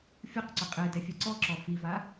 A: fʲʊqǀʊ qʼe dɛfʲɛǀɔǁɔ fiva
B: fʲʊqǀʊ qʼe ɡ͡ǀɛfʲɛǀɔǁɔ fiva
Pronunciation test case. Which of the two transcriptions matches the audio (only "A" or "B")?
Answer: A